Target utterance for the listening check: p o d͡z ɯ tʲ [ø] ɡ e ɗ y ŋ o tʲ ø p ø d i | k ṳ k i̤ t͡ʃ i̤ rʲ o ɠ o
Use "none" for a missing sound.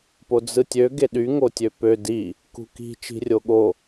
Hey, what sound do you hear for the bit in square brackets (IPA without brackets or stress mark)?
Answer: ø